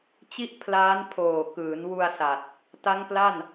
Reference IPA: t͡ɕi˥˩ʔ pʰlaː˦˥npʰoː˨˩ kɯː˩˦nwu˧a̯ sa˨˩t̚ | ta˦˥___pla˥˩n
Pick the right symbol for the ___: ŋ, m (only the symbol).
ŋ